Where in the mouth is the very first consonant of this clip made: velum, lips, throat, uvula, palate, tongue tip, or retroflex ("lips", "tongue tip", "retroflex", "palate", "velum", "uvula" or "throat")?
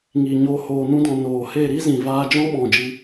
velum